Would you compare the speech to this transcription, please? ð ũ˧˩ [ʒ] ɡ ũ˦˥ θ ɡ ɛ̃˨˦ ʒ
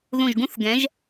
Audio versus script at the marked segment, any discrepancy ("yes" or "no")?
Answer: no